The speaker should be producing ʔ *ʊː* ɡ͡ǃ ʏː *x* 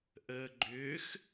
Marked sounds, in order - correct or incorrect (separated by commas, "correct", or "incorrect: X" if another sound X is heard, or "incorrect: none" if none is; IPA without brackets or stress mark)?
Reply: incorrect: əː, correct